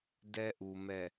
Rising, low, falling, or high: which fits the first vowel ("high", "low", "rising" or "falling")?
high